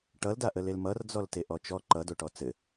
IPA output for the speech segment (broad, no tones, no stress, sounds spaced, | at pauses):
ʈ ʌ l d a ʔ ə l e l m ʌ r d͡z ɔ l t e ʔ ɔ t͡ʃ ɔ ǃ ʌ d o ʈ ɔ t͡s ɘ